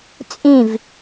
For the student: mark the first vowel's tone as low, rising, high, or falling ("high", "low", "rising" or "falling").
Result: falling